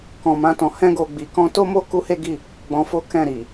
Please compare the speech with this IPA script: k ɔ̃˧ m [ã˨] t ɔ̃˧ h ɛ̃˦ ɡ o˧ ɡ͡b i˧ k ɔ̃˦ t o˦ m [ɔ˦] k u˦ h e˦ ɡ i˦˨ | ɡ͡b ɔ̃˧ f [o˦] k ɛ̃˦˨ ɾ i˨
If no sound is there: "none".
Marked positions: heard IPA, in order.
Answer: ã˦, o˦, o˦

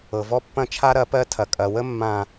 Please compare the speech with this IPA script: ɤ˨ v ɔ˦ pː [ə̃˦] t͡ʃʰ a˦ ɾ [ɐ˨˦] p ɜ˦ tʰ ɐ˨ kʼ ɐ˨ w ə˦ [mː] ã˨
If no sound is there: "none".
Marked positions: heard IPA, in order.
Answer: ɐ̃˦, ɐ˨˦, mː

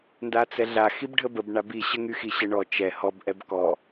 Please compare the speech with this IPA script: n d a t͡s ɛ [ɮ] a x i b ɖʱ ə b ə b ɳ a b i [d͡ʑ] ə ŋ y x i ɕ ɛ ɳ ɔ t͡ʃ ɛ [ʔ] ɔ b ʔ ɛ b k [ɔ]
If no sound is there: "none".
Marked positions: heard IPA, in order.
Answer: ɮ, ɕ, h, ɔ

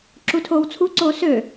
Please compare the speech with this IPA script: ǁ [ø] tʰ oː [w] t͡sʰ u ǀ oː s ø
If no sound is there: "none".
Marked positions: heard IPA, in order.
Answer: u, w

